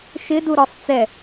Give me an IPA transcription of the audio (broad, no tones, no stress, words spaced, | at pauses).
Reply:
ʃɪdu ɾɔsˤt͡sɛ